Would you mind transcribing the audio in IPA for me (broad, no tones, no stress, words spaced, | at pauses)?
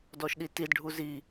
dɔʃɗitidɖʱu zi